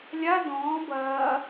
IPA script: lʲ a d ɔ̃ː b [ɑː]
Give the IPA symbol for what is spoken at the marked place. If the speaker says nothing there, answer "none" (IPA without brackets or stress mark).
ɐː